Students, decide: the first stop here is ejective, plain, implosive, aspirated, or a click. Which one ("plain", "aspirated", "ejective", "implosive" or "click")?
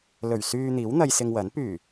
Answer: plain